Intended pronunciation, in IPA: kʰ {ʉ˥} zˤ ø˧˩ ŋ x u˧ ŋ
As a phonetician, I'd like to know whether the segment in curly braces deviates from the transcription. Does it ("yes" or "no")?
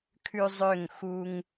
yes